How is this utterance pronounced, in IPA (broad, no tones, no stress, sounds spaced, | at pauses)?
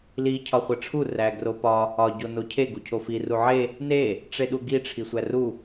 l i cʰ ɒ χʷ e ʈ͡ʂʰ u r æ ɡ r o p ɒ | ɒ ɟ o n o cʰ e ɡ u cʰ o f i r u ʕ e | n e | ʈ͡ʂ e ɗ u ɡ i ʈ͡ʂʰ i sʷ æ r u